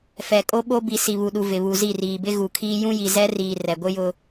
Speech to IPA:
fɛ˨kʼo˦ɓo˦ bi˨ si˨βu˨ɗu˨ vɪ˨βu˨zi˦˨ riː˨bɪ˦ɣu˨kʰiː˦ jũ˦ji˨zɛ˦riː˨ rɛ˨ɡʷɪ˦ jʊ˦

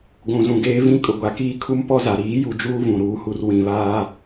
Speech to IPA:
ɡʷũ˨zũ˨ɡeː˦ vĩ˦ kʼʊ˨ɡʷa˨ kiː˦kʰu˦mpɔ˦za˨ ɾiː˨˦ju˨d͡ʒuː˦ vũ˨ɾuː˦hu˦r wĩ˨βaː˦

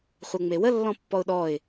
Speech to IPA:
χʷɤŋ͡mewə lːɔ̃pːɔʊ̯ɗɔɪ̯

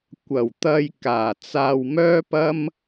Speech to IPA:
kʷɐ˨˩wt̪ɐ˧j kaː˨˩t͡saː˧wmœː˥pɐ˥m

